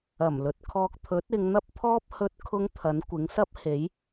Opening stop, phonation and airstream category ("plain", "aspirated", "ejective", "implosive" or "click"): plain